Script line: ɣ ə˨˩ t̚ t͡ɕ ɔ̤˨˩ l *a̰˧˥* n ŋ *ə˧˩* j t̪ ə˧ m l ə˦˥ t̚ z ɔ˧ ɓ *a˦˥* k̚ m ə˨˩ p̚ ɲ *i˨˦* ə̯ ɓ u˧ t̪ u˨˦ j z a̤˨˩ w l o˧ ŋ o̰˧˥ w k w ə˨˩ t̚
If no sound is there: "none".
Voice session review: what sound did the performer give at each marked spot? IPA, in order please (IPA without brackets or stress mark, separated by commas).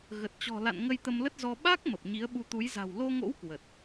a̰˧˨, ə˧, a˦˥, i˨˦